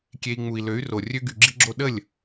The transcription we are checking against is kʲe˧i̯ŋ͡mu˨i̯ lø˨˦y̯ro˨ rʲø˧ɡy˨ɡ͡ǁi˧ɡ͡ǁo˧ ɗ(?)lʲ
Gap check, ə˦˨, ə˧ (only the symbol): ə˦˨